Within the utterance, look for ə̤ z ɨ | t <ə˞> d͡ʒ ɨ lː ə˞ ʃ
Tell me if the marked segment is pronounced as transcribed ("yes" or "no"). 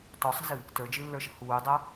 yes